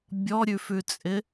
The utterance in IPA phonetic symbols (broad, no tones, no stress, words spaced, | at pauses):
bʲɔɾʲʉfʉt͡sʼɪ